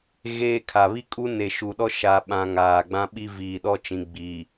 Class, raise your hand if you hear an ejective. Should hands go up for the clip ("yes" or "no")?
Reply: yes